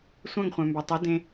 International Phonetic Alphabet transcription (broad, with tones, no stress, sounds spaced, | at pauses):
sʷ œ̃˦˨ ŋ χʷ œ̃˨ m b ø˨ tˤ i˨˦ d ẽ˦